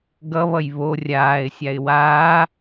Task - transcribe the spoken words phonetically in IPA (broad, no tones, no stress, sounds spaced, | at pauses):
ɡ ʌ β ʌ j β o rʲ aː ɪ̯ sʲ a ɪ̯ w aː